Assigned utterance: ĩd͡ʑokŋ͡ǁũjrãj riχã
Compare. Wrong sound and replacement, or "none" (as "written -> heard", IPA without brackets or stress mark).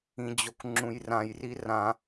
χ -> r